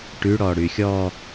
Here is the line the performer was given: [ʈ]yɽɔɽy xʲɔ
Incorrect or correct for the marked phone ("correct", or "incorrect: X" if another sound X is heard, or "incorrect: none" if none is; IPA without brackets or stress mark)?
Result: correct